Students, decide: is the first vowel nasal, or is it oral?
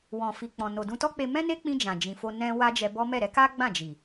nasal